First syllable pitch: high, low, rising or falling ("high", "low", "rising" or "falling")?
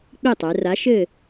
falling